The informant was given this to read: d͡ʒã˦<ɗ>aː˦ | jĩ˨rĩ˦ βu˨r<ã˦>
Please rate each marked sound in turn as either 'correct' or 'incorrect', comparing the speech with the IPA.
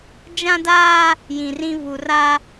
incorrect, incorrect

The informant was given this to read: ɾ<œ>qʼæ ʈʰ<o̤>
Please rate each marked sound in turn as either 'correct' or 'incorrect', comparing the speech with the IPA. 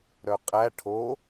correct, incorrect

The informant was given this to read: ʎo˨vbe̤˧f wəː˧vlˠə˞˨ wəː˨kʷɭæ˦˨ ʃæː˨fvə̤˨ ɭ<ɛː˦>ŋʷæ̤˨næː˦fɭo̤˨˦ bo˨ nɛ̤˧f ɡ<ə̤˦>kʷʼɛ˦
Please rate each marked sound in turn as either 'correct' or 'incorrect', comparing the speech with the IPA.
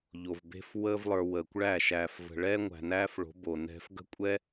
correct, correct

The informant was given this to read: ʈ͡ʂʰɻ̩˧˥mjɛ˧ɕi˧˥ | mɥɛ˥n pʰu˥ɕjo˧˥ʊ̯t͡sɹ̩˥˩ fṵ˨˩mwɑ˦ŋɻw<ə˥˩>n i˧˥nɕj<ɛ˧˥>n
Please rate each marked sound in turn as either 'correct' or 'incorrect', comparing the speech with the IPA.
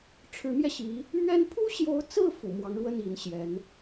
correct, correct

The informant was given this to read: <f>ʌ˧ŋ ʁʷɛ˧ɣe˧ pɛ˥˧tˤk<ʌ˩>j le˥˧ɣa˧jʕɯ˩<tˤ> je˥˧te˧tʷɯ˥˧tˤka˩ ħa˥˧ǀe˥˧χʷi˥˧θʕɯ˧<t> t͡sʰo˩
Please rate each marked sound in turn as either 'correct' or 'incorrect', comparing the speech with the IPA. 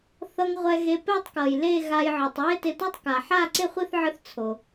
incorrect, correct, correct, incorrect

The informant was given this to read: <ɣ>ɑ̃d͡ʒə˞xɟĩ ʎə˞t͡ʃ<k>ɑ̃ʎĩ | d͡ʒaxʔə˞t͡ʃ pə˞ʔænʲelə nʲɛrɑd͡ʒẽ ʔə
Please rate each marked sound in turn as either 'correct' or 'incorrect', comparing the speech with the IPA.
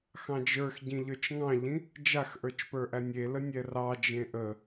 incorrect, incorrect

